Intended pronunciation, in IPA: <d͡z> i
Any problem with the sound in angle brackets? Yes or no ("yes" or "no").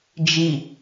yes